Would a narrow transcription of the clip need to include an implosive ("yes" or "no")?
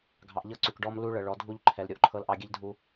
no